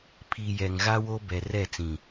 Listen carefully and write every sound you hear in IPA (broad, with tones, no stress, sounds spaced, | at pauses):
pʰ i˨ j ɛ˨ ŋ ɣ a˦ w o˦ b ɛ˨ r ɛ˦˨ t͡s ĩ˨